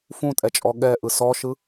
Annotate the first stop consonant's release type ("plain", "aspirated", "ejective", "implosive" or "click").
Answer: ejective